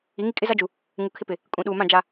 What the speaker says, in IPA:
i˨˦ ŋ i˦ kʼ ɪ˦ z a˦ d͡ʒ u˨ | ŋ u˨ kʰ ɪ˦ p ɪ˨ | kʼ ũ˨ ɗ uː˨ m ã˦˨ d͡ʒ a˨

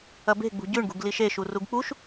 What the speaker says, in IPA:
ɐ b e̤ ɡ͡b ṳ ɟ ʉ ɳ ɡ ṳ ɡ l i ʃ e ʃ u r u ɡ k͡p u ʃ

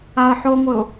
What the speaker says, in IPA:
a ə̯ ħ o ŋʷ ɘ ʊ̯

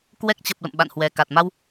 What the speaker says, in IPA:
k w ɛ˦˥ k̚ t͡ɕ ə˨˩ p̚ l ə̰˧˨ m ɓ a̰˧˨ n h w ɛ˨˩ k a˨˩ t̚ m a˧ w

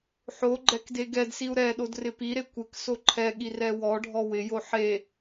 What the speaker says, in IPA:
ħ o ɡ͡ǃ ɛ k d e ɡ ɛ d s i u̯ ɾ ɛ ɗ o d r ɪ p i ɾ e kʷ ɪ k s o ǃʰ ɛ ɠ i r ɛ w ɔ ɖʱ ɔ w ɪ j o ħ e

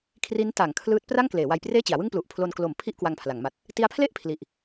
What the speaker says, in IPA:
kʰ r i˦˥ n t a˩˦ ŋ kʰ l ɯː˦˥ t̚ p r a˥˩ ŋ k l eː˩˦ w a˧ j p r eː˥˩ t͡ɕ i˩˦ a̯ w ɯ˥˩ ŋ p l u˨˩ ʔ pʰ l o˧ n k l o˨˩ m pʰ i˥˩ ʔ k w a˧ ŋ pʰ l a˩˦ ŋ m a˨˩ t̚ | t i˦˥ a̯ pʰ l e˥˩ ʔ pʰ l i˨˩ ʔ

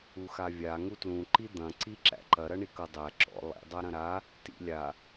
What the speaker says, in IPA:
u x a vʲ a ŋ u t l ũ ǃ i d̪ ɐ̃ ǀ i ǁ æ̰ ǃ ɐ ɾ ɐ ɳ i k ɤ dˤ æ ǁ ɔ̰ lˠ ḭ dˤ a ɾ ɐ̃ ɾ a | t ḭ lʲ a

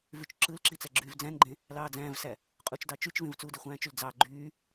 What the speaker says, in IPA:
v y t͡ʃ ǁ ɯ l ǁ i t͡s æ ɡ͡ǁ yː v d͡z æ̃ n ɡ͡ǃ ẽ | l ɑː d͡z æ̃ː v s æ | qʼ u t͡ʃ d ɑ t͡ʃ y t͡ʃ v ẽ v t͡s uː d e χʷ æ̃ː t͡ʃ y l d͡z ɑ ɡ͡ǃ yː

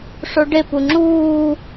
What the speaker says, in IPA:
ʂ o ɖ e p u ŋ͡ǁ uː

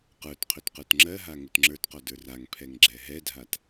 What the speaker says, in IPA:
q ə˞ t qʰ ø t q ə˞ t ŋ͡ǁ ɜ ɦ a ŋ ʊ t ŋ͡ǁ ə˞ t q ɔ d ə˞ r a ŋ pʰ ɛ ŋ ɡ͡ǁ ɛ ɦ ɛ dʱ a t

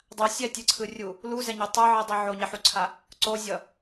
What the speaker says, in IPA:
dˤ a sʲ ɛ tʲ ɯ ǀʰ ɯ rʲ u | l u z ɛ ɲ o tˤ ɯ ʕ i dˤ i ʕ o ɲ ɛ ħ u ǀʰ a | ǀ o zʲ ʌ

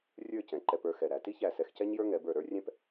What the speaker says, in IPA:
rʲ ə˞˥˧ c ɛ̃˩˧ ǃ ɛ˧ p ə˞˧ x ɛ˧˩ ɾ æ˩˧ t i˥ ç æ˧˩ s ɛ˧ x c ɛ˥ ɲ j ə˞˥ ŋ ɛ˩˧ b ə˞˧˩ ɾ ə˞˥ rʲ ɛ̃˥ p

